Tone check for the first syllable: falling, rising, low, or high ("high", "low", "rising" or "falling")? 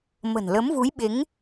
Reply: low